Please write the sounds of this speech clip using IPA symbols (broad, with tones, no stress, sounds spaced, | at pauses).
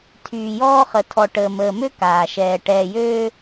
tʰ yː˨ j ɔː˦ χ ə˨ tʰ ɔ˨ ʈ əː˨ m əː˨ m ø˦ k aː˨ ʃ ɛː˨ ʈ ɛː˨ j øː˦